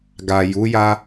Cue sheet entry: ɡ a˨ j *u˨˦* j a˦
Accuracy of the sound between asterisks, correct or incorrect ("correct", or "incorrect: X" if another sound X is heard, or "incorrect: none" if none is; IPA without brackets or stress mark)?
correct